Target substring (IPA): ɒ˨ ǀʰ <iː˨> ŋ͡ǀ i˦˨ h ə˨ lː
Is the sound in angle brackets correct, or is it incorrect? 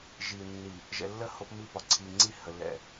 incorrect